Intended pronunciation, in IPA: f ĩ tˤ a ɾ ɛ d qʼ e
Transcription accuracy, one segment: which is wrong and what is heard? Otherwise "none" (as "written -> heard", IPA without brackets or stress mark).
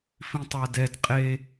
ɾ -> d